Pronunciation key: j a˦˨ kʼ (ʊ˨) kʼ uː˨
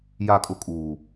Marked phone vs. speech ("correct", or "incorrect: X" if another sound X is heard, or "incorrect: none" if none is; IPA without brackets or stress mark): incorrect: ʊ˦